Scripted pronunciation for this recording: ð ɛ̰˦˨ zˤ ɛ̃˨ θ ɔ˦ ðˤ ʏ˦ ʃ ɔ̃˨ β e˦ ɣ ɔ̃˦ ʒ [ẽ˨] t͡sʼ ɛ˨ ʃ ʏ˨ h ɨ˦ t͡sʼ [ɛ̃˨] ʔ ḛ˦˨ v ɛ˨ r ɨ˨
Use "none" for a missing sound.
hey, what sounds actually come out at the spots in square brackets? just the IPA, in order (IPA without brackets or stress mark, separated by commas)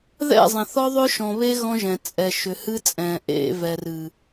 ɛ̃˨, ɛ̃˨